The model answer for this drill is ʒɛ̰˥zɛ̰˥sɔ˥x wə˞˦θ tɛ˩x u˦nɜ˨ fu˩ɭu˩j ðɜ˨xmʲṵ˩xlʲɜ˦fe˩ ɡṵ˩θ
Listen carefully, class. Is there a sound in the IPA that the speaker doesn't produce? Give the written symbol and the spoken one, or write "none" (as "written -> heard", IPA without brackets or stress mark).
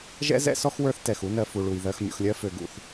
e˩ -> ø˩